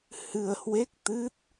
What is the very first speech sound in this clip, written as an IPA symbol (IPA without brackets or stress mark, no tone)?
h